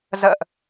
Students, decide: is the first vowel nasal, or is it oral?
oral